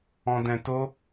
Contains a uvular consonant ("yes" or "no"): no